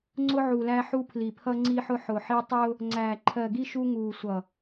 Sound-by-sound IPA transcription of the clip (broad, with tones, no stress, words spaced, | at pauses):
ŋ͡ǀʊ˦ʕu˨læ˦ħu˦ pʰli˨pʰʌ˦ ŋ͡ǀi˦ħʊ˦ ħʊ˨ħi˦ tˤʊː˦ | ŋ͡ǀæː˨ǃʰɜ˨ɡi˦ ʃu˦ŋuː˨ sʷʌ˨